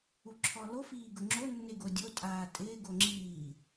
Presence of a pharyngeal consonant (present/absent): absent